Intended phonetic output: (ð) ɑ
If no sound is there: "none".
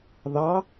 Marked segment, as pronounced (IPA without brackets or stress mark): ð